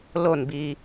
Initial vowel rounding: rounded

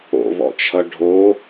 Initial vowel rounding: rounded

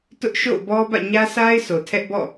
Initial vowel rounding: rounded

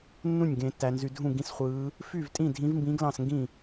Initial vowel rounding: rounded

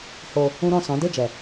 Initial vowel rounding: rounded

